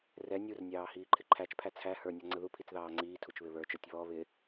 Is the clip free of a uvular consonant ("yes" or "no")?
yes